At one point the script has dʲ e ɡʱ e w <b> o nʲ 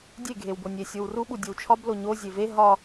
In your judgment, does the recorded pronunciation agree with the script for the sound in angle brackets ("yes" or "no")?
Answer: yes